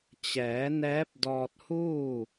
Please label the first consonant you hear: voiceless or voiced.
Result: voiceless